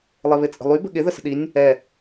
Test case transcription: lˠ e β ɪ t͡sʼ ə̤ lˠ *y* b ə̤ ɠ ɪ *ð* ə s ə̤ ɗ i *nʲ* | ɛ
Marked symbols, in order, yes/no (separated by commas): yes, yes, yes